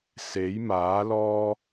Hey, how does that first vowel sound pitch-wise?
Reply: rising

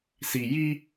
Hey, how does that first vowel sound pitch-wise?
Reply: low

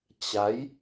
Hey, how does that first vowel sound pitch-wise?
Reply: rising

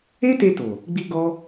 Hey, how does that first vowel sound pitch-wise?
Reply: high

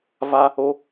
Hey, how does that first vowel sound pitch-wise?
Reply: high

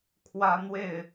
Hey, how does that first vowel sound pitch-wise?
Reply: high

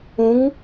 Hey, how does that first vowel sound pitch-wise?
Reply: rising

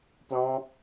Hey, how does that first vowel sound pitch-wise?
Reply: high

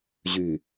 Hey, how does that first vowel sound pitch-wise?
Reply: low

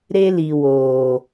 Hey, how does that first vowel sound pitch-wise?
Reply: high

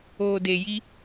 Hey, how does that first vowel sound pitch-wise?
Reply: low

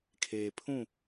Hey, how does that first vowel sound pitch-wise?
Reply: low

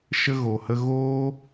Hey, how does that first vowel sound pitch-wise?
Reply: high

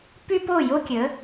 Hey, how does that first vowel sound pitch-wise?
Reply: high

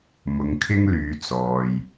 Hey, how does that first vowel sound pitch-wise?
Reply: low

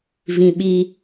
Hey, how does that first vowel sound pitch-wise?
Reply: high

